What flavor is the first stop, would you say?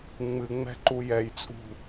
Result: click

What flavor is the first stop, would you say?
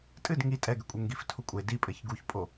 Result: ejective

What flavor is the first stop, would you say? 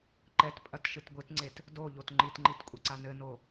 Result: click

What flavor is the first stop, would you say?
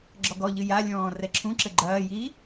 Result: click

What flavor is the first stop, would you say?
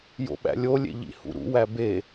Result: implosive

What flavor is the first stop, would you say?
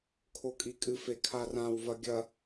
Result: aspirated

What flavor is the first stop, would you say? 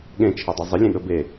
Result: implosive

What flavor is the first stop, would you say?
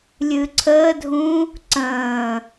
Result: click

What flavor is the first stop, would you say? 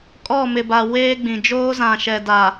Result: ejective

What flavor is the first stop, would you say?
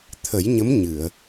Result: aspirated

